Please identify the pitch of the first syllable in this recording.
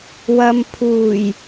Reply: low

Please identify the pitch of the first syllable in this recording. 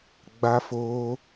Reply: high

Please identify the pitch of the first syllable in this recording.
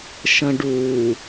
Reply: low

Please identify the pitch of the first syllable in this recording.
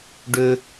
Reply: high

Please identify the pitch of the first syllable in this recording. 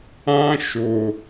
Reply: high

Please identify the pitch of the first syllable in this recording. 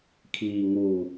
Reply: low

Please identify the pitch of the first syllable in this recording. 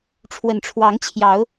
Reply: low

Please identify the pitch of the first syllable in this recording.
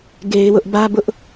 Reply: high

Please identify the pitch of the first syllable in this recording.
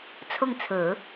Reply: falling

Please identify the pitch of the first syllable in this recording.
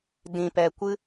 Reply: low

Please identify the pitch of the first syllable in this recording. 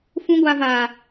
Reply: high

